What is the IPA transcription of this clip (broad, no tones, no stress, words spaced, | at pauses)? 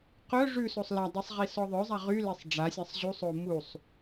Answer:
qœ ʐʉ sosˤladˤisˤ ʁisɔðˤœzˤa ʁylesˤ ɖ͡ʐasʲasˤ ʑusˤo musˤ